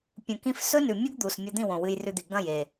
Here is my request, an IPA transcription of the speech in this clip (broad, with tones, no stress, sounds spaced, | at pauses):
pʲ ũ˨ k ĩ˧ f s ɵ˦ n ʉ˨ mʲ u˦ ɡ d̪ u˨ s mʲ ɐ˧ d̪ ĩ˦˨ w õ˨ w ɨ˧ j r ʉ˧ d̪ i˨ ɡ ɐ̃˦˨ j e˨